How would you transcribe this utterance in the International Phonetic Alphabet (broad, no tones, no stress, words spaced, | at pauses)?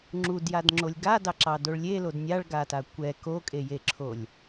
ŋ͡ǁudjadŋ͡ǁolʲ ɡadɑǁɑdoɭ lʲelod nʲaɭɡata kʷɛ kokʼejeǁʰolʲ